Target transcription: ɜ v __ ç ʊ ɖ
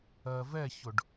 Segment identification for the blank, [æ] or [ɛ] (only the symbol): ɛ